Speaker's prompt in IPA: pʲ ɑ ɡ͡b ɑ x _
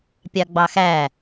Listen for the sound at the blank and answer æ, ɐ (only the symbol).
æ